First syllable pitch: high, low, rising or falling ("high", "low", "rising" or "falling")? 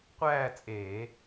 falling